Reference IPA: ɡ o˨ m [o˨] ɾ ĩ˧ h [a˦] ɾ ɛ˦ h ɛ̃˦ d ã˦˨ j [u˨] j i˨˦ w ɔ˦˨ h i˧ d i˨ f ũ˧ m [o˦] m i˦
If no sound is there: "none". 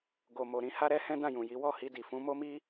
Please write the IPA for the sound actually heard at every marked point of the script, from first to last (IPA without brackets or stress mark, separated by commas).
o˨, a˦, ũ˨, o˦